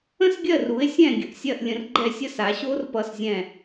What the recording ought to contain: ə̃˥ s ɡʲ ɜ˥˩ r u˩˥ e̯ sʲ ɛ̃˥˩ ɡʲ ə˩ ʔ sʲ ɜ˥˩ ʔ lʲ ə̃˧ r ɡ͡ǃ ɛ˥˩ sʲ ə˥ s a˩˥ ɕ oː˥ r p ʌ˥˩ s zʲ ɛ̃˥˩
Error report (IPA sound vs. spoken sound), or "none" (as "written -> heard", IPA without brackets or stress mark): none